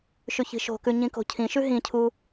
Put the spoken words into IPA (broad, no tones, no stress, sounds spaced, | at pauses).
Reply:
ʃ ʉ ç i̤ ʃ o̤ k ʉ ɲ ĩ k o̤ cʰ ĩ ʃ ʉ ɦ ĩ cʰ u